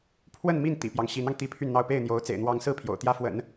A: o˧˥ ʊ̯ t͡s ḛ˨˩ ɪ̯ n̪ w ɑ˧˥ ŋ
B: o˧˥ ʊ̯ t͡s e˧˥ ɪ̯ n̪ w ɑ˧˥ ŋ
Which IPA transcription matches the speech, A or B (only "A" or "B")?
A